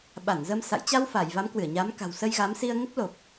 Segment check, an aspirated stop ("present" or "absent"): absent